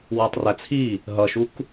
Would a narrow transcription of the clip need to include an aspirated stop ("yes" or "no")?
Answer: yes